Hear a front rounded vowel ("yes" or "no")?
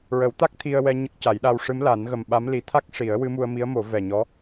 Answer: no